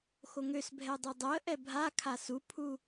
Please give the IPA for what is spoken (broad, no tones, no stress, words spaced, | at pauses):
xoŋøsbʱɛ dˤodˤoə̯ʔɛ bʱakʰa supʰu